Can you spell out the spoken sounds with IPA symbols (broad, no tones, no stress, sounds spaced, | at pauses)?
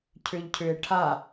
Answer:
cʰ ʉ ʎ cʰ ʉ e̯ ʈʰ a